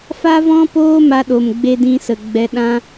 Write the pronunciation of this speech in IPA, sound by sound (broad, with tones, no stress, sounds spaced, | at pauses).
f a˦ v ɔ̃˦ p oː˦ m a˧ ɗ o˨ m ɡ͡b e˧ d ĩ˧ s ə˨ ɡ͡b ɛ˧ ɗ ã˦